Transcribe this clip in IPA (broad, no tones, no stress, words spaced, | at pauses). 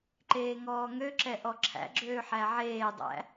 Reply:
ǃeːŋɔːŋøǁɛ ʔɔǁʰæ̰ɡ͡ǁøː ħæʕeːdˤæ̰